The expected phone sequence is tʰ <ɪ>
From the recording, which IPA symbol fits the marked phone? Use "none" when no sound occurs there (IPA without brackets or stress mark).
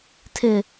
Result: ɪ